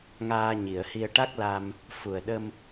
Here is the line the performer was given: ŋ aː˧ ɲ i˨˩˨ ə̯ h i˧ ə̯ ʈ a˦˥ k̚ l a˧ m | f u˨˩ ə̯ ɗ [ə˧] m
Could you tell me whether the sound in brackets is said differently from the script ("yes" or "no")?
no